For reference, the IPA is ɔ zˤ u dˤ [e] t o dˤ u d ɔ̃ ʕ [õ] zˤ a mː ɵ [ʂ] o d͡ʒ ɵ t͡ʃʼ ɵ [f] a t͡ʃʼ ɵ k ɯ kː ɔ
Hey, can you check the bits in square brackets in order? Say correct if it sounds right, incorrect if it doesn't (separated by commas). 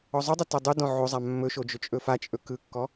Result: correct, incorrect, incorrect, correct